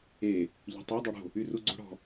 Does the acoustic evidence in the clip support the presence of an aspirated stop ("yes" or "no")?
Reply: no